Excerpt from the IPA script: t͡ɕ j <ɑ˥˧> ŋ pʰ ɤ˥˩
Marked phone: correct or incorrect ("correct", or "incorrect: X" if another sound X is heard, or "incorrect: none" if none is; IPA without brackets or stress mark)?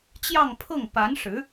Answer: correct